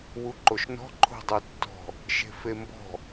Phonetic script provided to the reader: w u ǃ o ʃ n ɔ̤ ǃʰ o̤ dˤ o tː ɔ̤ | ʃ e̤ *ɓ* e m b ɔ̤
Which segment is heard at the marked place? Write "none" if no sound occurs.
f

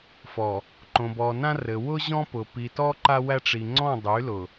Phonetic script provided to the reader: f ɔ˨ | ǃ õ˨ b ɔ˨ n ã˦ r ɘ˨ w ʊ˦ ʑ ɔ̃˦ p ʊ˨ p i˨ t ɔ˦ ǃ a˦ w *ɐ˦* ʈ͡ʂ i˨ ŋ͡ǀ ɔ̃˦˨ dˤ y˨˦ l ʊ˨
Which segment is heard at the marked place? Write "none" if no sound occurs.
æ˦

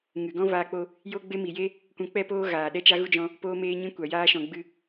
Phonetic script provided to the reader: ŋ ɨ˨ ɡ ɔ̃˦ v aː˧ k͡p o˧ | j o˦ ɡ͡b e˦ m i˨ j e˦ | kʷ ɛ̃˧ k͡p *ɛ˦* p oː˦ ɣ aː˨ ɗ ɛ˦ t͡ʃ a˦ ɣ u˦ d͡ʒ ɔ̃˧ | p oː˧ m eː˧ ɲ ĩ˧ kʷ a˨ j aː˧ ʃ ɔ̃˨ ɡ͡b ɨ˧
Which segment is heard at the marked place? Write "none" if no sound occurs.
ɛ˦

